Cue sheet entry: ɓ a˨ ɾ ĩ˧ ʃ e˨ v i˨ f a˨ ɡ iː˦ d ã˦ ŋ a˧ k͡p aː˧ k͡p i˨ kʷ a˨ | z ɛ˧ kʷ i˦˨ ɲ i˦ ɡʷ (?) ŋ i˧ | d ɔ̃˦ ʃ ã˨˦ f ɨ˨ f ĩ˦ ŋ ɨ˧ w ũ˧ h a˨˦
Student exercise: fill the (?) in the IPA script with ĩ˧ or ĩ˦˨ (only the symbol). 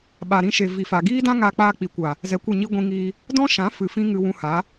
ĩ˧